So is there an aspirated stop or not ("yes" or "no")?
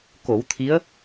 yes